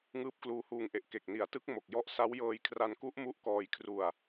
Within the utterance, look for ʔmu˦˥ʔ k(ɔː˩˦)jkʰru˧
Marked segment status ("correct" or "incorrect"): incorrect